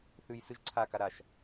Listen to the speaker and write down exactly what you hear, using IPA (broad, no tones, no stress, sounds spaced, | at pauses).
θ ʉ j s ɨ ʒ ǀʰ a k a ɾ a ʃ